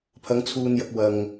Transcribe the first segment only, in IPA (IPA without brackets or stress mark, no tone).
pʰ